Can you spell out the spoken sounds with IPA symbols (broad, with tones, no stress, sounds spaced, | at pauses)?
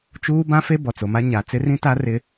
t͡ʃ uː˦ b ã˦ f e˦ b ɔ˨ t͡s o˨ m a˦ ɲ a˨ t͡s ɪ˦ r ĩ˦ t a˦ r ɪ˦